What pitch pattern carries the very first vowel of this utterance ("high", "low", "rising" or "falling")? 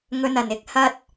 high